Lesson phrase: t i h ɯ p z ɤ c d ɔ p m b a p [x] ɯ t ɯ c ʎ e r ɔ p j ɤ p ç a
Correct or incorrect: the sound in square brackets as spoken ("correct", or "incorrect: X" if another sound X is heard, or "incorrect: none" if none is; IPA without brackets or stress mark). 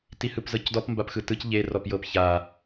correct